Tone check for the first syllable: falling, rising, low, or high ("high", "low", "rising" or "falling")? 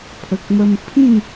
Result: low